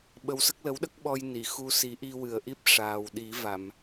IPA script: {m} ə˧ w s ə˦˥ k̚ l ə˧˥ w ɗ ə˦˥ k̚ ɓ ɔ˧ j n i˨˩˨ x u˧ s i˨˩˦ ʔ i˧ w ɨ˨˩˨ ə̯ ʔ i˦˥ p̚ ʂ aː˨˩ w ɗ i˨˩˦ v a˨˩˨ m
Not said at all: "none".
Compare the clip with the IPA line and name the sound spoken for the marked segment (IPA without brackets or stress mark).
ɓ